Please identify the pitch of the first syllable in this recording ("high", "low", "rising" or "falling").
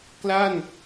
falling